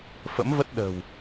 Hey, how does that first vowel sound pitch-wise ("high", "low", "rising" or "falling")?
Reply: rising